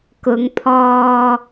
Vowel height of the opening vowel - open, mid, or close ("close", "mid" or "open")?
close